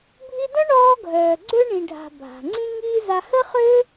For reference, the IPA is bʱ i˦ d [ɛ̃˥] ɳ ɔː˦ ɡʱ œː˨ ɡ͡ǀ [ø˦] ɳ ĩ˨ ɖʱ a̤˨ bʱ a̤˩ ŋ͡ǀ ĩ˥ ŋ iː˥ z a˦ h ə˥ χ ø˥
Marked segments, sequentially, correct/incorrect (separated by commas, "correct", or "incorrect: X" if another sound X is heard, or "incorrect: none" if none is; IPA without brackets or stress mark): incorrect: œ̃˥, correct